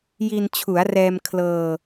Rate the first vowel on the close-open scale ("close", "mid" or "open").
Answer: close